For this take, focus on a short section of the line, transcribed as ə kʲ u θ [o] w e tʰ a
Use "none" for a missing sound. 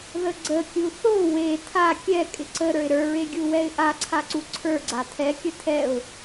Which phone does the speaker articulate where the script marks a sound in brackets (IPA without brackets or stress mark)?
o